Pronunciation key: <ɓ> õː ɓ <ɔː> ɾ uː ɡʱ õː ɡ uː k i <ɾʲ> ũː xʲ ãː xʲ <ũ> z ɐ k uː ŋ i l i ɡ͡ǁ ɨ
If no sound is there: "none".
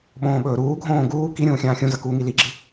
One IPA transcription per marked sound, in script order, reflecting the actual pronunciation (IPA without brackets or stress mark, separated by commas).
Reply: ɓ, ɵː, ɾʲ, ũ